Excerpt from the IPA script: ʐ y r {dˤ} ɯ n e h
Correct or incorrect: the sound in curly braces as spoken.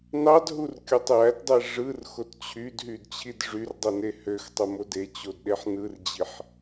correct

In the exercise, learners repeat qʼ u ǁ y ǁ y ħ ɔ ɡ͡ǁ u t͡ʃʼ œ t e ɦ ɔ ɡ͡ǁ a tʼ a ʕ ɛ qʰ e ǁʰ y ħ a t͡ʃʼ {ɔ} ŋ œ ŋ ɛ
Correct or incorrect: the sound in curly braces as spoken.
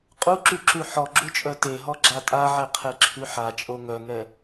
incorrect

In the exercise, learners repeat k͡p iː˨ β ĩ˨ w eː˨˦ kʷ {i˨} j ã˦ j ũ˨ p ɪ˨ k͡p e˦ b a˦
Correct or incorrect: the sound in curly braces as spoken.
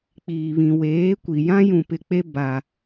correct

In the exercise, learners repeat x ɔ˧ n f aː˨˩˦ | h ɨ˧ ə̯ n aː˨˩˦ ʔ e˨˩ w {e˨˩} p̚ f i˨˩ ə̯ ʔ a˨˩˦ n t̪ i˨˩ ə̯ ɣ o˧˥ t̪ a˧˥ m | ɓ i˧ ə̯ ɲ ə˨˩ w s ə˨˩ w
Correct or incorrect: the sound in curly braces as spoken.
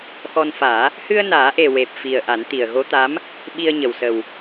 correct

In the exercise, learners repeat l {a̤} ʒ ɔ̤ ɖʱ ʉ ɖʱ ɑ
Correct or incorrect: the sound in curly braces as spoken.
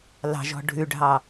incorrect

